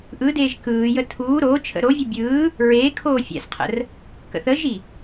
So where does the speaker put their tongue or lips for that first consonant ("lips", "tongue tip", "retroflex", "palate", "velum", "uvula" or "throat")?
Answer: throat